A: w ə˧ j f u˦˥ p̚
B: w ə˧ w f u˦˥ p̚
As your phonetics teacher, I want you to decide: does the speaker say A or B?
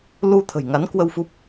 B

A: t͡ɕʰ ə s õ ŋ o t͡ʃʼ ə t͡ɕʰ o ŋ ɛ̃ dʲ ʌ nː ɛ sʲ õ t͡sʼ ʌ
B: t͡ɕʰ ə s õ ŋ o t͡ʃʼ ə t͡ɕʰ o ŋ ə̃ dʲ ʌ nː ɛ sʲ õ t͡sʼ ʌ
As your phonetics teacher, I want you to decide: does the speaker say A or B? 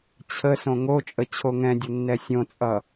A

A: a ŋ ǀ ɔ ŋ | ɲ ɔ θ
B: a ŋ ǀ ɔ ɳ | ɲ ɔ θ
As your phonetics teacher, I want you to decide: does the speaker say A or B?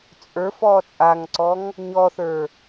A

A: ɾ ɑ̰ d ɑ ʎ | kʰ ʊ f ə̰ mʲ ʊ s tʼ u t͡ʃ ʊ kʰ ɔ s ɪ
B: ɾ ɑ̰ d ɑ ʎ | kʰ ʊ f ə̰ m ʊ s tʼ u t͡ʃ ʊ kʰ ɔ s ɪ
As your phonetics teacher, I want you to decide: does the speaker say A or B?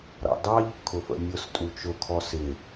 A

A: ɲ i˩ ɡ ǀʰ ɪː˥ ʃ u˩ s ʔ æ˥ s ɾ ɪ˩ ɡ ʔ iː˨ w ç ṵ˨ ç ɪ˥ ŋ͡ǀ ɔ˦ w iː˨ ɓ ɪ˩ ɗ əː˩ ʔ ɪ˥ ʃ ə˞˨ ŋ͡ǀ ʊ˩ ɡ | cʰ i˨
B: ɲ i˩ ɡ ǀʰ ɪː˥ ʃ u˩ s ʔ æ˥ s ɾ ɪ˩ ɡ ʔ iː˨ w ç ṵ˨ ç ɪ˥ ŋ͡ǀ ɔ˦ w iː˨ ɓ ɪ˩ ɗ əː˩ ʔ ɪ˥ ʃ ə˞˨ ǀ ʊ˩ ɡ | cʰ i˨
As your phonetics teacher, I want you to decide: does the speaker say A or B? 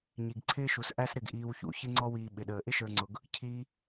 A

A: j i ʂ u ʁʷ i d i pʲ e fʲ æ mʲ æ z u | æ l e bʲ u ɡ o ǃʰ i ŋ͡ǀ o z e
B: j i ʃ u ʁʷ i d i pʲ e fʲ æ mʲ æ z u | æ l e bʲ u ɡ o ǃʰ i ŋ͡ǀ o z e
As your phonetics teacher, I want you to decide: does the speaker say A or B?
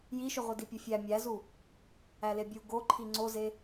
B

